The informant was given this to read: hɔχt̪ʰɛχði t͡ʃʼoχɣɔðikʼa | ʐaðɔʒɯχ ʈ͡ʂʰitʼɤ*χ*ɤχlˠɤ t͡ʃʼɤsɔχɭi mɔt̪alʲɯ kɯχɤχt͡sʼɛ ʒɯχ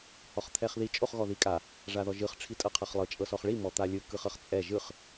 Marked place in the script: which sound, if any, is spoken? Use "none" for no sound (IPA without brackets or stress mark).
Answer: qʰ